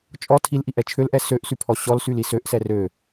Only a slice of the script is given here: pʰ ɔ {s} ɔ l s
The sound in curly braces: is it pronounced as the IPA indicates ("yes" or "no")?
no